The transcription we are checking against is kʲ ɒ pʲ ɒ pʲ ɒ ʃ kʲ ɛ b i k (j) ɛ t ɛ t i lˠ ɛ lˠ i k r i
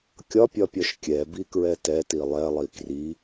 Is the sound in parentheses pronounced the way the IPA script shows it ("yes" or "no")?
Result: no